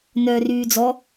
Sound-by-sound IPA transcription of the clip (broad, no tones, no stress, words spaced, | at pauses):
nœːryːd͡zɔ